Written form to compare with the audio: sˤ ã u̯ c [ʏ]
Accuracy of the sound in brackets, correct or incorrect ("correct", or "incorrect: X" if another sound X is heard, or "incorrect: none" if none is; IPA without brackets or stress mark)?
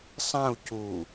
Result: incorrect: u